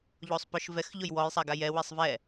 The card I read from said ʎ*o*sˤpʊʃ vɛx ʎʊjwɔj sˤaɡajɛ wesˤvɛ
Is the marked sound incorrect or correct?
correct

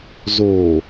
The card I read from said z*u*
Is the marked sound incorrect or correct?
incorrect: o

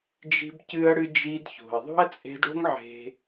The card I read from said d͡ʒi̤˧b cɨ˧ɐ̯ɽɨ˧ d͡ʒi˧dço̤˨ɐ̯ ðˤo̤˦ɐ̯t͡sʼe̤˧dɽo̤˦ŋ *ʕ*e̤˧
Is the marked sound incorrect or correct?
correct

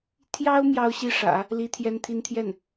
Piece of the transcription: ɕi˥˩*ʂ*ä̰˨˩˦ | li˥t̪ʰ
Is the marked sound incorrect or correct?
correct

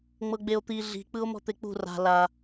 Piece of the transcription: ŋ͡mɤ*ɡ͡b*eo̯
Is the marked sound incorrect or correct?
correct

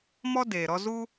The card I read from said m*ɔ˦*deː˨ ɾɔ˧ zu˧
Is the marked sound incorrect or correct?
correct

